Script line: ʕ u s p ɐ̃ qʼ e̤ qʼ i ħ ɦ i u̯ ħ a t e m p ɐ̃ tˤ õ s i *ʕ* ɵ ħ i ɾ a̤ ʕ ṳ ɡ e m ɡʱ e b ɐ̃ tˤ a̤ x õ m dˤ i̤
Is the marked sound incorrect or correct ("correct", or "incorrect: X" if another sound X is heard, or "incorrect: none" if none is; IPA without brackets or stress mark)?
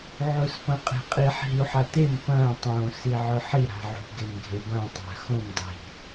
correct